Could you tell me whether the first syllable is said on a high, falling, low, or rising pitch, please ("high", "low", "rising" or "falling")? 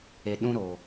low